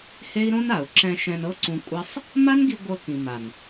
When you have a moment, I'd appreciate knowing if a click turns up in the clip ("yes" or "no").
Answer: yes